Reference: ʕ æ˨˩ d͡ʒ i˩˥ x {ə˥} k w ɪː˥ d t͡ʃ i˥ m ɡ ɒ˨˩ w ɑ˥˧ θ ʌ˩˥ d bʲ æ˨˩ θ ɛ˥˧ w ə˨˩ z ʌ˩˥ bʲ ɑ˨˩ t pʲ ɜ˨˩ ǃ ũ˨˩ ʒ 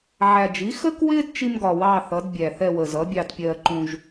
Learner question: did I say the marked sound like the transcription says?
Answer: yes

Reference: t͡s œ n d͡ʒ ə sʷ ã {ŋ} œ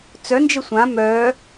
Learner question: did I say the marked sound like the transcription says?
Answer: no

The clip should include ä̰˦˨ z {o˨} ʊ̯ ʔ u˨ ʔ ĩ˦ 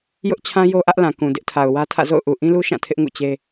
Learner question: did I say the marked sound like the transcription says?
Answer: no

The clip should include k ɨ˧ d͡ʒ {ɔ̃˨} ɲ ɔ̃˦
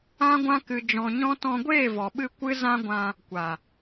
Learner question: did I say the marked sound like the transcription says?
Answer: no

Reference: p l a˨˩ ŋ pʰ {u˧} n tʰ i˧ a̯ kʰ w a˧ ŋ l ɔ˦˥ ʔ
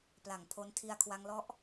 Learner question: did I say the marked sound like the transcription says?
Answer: no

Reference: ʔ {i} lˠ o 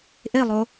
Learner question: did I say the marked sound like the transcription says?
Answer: no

